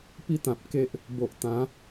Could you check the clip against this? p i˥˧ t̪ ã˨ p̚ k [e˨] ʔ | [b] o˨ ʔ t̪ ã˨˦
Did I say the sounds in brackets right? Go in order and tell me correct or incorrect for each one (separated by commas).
incorrect, correct